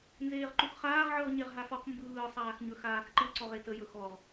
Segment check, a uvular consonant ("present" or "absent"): present